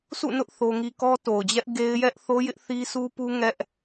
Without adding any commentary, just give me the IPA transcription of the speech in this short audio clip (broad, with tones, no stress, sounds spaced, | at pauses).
s ṵ˦˨ n ʊ˦ ʔ θ o˦ ŋ i˦ k ɔ˦ t o˨ ʊ̯ d͡ʑ ɛ˦ ʔ ɡ e˦ ɪ̯ j ɛ˦ ʔ θ o˦ j ɪ˦ ʔ θ i˦ sʰ u˦ p u˦ ŋ ɛ˦ ʔ